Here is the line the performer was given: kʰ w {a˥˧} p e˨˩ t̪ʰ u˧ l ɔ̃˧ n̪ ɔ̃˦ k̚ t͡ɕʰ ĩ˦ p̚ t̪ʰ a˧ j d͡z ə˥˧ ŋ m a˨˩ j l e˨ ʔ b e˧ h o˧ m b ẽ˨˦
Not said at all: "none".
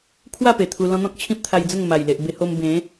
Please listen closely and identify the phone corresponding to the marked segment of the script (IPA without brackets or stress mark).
a˥˧